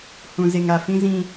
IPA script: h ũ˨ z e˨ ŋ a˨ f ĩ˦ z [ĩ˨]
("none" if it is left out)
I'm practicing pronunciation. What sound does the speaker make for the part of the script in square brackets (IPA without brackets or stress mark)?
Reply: ĩ˦